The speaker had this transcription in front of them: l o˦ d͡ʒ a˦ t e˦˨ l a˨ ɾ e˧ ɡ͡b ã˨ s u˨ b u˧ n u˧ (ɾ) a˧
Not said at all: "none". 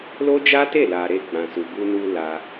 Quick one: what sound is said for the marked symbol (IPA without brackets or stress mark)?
l